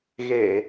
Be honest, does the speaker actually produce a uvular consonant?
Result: no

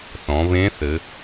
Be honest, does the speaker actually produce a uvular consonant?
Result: no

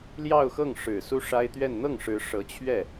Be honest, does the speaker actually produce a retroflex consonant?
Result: yes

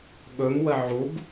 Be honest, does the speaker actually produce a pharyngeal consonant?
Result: yes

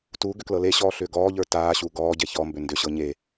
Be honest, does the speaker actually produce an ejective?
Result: no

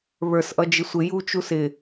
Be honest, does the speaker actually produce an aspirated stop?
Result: no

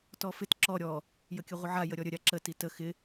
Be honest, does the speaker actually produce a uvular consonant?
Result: yes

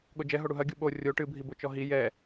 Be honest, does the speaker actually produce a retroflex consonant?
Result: yes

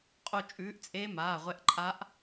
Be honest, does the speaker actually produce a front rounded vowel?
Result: no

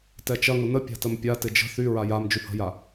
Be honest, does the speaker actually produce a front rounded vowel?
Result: yes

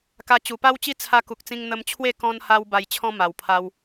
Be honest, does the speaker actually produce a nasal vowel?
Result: yes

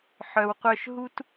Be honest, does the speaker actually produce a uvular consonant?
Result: yes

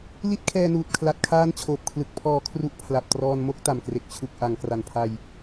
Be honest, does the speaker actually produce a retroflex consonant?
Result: no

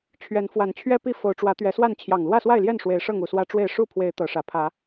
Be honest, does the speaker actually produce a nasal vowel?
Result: no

